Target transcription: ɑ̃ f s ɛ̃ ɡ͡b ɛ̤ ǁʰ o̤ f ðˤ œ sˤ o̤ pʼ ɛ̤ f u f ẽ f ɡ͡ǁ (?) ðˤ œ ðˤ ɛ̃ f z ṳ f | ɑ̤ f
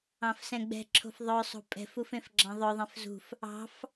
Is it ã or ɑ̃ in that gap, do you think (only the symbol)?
ɑ̃